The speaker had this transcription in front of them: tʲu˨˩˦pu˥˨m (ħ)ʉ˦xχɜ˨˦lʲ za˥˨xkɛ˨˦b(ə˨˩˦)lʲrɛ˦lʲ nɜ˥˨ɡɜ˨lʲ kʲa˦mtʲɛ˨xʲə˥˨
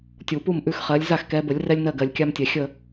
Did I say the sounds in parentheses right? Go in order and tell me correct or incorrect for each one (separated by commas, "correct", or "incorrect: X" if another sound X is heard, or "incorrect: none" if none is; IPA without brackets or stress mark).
incorrect: ʔ, correct